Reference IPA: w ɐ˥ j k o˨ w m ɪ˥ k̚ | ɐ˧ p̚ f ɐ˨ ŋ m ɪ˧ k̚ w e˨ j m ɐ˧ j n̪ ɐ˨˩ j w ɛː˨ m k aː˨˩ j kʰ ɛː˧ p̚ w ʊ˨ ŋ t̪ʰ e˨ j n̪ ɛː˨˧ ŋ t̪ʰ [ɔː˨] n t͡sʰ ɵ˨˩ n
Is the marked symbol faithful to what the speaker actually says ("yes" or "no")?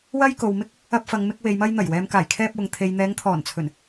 no